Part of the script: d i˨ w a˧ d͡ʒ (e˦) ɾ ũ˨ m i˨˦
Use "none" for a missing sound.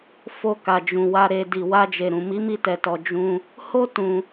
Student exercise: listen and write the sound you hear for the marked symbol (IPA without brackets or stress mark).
e˨